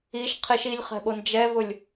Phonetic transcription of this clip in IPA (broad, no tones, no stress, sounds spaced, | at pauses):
i ʃ qʰ ɪ ʃ i lʲ χ ɛ̤ ɓ o n d͡ʒ ɛ v ʊ lʲ